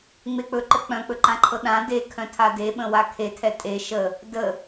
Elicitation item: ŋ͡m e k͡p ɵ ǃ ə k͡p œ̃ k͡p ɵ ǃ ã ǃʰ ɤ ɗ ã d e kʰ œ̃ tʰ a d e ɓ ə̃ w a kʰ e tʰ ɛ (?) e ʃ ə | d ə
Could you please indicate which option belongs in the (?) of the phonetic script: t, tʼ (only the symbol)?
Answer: tʼ